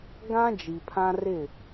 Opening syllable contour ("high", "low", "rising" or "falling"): high